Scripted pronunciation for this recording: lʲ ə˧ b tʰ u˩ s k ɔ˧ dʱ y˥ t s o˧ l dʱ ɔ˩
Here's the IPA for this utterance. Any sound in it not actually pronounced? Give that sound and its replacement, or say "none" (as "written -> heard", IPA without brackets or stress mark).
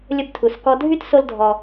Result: none